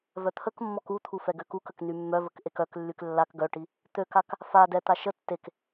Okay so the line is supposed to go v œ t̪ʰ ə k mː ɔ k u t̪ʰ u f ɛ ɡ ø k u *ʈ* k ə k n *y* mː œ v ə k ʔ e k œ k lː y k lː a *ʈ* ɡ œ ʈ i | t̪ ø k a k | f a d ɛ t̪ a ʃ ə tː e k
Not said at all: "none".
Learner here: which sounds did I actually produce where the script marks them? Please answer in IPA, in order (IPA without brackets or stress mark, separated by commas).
none, y, k